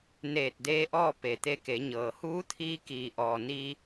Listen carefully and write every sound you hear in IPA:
n eː˧˩ t̚ d eː˧˥ ʔ ɔː˥˨ p e˩ t̪ e˧ k e˩˧ ɲ ɤː˩ h uː˧˥ t̪ʰ iː˧ k iː˩ ʔ ɔː˩ n iː˧

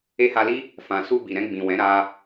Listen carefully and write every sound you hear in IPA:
e˧ h a˧ l i˦ | f ã˨ s u˧ b i˨ ɾ ɛ̃˧ ɡ͡b ĩ˨ w ɛ̃˨˦ ɾ a˧

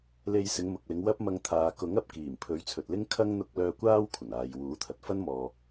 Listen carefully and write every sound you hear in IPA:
l e˧ j s ɪ˨˧ ŋ m ʊ˨ k̚ l ɪ˨˧ ŋ w ɐ˥ p̚ m ɐ˧ ŋ t̪ʰ aː˨ k ʊ˨˥ ŋ ɐ˨ p̚ k iː˨˩ m pʰ ɵ˨˥ ɥ t͡sʰ ɵ˨ t̚ l ɪ˥ ŋ kʰ ɐ˥ ŋ n̪ ʊ˧ k̚ l œː˧ kʷ aː˥ w kʷʰ ɐ˨˩ n aː˨ j w uː˨˥ t̪ʰ ɐ˨ t̚ f ɐ˥ n m ɔː˨

